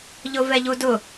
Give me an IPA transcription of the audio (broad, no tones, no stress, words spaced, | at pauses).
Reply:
ʎʊvɛʎudʊ